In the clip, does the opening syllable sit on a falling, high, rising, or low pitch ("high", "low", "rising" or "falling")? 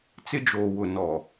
high